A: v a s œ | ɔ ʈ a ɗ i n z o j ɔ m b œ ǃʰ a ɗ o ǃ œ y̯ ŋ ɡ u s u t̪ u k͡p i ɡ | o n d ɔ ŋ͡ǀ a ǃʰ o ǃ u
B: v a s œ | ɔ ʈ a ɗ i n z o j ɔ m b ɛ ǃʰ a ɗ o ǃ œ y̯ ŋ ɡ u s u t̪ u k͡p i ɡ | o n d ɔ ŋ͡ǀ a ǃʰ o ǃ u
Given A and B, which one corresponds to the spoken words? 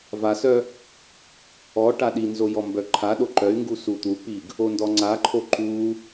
A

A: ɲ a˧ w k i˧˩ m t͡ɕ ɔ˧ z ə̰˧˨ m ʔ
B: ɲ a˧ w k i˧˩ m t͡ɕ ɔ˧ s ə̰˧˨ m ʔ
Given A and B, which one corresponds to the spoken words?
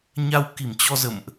A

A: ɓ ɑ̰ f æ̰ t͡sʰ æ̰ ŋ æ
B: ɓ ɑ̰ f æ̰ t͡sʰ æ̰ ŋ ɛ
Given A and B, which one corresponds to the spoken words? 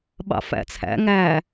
A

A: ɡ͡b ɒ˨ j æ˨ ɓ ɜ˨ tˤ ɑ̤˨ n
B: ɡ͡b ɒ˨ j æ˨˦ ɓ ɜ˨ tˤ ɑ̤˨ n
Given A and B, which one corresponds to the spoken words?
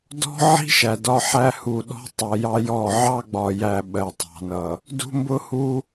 A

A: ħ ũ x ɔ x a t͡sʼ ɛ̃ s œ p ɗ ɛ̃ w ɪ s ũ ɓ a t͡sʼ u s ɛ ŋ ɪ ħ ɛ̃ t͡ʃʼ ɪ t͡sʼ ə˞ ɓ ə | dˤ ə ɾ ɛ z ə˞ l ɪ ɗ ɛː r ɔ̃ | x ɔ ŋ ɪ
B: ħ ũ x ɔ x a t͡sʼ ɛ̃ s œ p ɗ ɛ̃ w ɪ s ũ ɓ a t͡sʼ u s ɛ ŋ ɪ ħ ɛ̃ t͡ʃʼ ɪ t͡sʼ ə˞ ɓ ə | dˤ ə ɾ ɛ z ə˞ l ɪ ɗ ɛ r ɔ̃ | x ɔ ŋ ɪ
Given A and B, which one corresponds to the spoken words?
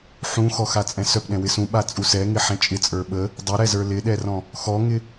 B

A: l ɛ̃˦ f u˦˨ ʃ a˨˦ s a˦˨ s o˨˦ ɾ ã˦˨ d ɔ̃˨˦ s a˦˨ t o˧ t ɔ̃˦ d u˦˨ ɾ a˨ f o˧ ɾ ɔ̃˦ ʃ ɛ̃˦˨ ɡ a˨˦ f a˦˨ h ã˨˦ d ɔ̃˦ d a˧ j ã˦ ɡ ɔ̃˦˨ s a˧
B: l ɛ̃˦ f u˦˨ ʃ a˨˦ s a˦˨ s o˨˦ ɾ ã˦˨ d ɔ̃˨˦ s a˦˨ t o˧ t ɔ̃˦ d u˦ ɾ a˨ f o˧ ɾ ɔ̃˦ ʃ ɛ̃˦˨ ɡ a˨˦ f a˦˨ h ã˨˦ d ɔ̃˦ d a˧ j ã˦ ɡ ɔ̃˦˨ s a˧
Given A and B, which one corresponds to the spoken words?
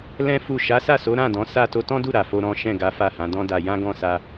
A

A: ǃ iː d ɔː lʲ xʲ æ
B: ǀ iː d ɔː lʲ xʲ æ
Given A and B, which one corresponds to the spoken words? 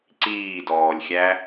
B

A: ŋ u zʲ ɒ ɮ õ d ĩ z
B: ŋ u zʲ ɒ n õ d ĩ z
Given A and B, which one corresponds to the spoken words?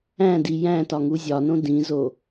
B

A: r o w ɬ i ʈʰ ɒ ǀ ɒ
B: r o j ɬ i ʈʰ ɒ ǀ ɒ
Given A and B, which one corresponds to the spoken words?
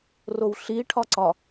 A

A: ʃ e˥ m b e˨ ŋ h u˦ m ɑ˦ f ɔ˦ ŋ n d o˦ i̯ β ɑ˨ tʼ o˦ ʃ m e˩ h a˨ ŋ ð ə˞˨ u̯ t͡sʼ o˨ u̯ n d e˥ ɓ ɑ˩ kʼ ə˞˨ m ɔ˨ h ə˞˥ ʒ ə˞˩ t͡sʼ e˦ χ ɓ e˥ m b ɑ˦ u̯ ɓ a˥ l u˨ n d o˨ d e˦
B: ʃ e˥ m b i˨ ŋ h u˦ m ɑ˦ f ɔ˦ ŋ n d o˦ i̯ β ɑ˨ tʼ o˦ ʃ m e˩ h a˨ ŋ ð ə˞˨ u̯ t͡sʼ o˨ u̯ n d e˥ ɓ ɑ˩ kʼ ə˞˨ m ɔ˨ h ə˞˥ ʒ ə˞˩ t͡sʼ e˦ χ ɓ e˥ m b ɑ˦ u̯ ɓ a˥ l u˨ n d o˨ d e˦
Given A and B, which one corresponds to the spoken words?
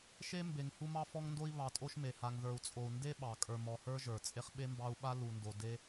A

